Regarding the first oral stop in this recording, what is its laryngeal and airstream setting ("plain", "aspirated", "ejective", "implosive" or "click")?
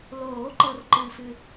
click